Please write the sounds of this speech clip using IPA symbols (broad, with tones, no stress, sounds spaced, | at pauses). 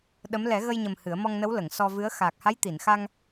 ɗ ə˧˥ m l ɛ˨˩˦ ɣ ə˧ j ɲ ə˨˩ m h ɨ˨˩˦ ə̯ m ɔ˧ ŋ n ə˧˥ w l ə˨˩˨ ŋ s ɔ˧ v ɨ˧˥ ə̯ x aː˨˩ k̚ h a˧˥ j t̪ i˨˩˨ n x a˧ ŋ